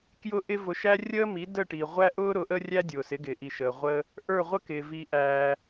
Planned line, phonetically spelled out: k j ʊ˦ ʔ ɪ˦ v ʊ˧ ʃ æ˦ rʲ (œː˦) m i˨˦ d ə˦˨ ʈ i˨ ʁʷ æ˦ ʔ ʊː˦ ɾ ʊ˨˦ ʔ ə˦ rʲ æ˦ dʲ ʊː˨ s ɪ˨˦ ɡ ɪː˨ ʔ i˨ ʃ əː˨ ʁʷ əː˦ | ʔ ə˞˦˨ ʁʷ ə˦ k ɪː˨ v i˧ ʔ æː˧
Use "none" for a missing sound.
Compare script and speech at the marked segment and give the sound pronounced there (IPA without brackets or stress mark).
əː˦